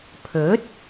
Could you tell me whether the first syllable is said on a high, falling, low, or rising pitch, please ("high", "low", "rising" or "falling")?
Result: rising